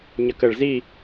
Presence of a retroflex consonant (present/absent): present